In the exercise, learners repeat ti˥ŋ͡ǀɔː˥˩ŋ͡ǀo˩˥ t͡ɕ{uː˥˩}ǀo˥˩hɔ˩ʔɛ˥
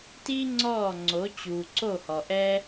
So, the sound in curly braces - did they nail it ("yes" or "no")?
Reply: no